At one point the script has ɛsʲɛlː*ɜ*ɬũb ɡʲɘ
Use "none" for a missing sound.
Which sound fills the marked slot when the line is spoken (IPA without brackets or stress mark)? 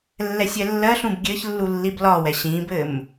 ɜ